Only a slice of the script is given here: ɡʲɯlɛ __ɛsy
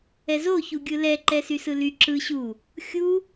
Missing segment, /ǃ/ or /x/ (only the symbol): ǃ